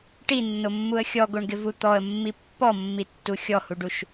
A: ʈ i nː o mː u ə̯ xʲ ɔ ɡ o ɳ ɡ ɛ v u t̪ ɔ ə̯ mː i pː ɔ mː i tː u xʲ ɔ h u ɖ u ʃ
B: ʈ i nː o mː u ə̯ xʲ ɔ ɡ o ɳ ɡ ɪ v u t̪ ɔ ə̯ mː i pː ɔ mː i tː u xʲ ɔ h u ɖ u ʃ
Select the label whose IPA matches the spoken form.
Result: B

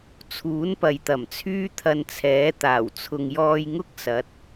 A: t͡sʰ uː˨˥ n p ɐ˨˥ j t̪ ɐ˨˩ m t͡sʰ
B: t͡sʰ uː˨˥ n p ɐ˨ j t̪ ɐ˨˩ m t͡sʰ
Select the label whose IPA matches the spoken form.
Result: B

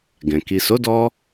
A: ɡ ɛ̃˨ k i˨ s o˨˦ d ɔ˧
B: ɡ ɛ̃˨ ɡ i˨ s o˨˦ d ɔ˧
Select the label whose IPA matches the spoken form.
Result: A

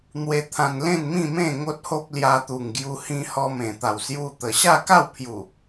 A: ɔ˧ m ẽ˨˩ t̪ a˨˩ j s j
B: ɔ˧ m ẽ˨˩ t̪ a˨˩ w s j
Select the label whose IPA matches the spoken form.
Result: B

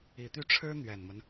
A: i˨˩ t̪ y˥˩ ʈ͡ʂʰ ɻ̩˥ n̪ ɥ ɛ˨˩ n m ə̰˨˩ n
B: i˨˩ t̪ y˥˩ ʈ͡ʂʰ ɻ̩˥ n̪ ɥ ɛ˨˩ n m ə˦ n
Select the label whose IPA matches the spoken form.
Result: B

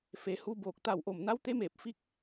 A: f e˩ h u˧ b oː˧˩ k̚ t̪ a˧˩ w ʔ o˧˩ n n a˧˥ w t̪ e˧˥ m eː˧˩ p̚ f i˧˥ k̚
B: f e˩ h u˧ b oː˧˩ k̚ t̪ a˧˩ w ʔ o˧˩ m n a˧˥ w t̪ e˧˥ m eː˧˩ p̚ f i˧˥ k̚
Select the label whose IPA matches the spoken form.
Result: B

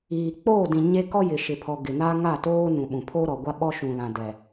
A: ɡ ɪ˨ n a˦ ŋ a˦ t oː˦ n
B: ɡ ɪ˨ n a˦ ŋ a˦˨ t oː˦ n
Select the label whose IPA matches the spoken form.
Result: B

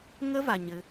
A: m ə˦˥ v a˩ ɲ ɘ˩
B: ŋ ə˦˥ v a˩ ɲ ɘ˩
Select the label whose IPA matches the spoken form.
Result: B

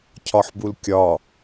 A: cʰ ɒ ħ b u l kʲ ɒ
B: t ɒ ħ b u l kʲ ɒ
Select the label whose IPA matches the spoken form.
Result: A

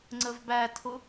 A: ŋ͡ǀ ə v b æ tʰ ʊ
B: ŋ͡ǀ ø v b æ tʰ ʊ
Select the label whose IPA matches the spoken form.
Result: A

